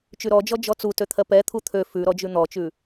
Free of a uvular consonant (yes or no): yes